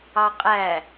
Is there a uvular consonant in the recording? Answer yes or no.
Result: yes